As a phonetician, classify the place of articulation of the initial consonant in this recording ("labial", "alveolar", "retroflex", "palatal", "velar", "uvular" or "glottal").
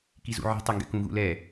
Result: velar